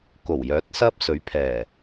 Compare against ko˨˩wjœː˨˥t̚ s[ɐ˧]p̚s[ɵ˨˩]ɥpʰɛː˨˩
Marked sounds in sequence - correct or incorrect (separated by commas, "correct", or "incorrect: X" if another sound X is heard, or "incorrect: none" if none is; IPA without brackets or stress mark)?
incorrect: ɐ˥, incorrect: ɵ˨˥